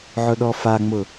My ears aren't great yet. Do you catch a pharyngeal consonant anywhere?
yes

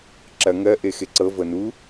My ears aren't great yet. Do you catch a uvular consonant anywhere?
no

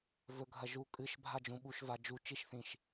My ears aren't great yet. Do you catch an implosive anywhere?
yes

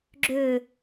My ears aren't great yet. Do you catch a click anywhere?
yes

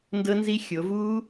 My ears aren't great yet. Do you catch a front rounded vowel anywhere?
no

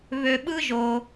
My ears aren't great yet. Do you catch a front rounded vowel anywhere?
yes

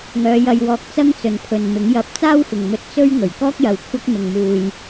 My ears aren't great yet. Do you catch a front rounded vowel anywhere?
yes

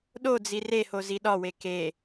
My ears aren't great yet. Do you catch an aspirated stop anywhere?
no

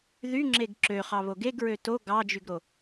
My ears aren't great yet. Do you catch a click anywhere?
yes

